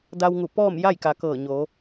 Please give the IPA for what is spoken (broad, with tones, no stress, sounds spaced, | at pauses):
d a˧ w ŋ u˧˩ p ɔː˥˨ m j a˥˨ j k a˩˧ k ɤː˧˩ ɲ oː˩˧